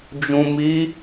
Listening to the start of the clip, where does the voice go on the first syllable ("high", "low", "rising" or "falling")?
low